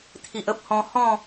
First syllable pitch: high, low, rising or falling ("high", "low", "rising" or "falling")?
low